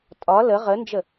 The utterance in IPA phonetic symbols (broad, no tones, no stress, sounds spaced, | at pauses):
tʼ ɒ l ə ʁ ə n d͡ʒ ə